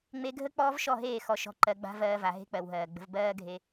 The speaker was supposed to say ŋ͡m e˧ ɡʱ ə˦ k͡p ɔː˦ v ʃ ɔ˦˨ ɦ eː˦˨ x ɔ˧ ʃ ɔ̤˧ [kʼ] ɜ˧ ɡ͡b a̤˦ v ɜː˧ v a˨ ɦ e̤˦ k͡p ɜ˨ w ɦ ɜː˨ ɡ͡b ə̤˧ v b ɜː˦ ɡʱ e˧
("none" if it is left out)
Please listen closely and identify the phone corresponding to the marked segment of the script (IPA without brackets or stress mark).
ǃ